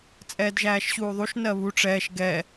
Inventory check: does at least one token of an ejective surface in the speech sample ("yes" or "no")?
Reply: yes